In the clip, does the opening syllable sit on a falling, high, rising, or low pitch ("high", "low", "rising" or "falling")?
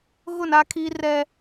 falling